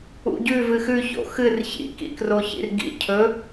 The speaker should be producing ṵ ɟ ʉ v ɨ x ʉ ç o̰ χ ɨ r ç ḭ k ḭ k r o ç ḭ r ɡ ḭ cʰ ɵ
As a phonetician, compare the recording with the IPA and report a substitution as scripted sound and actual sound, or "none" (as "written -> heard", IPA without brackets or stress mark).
χ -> x